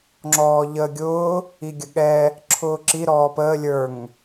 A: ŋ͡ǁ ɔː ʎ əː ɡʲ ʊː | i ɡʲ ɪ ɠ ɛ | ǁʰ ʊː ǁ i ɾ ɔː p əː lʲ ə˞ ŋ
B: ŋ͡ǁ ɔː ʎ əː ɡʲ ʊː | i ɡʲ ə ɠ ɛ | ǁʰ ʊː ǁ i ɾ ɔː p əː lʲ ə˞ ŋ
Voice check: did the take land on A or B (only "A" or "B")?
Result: B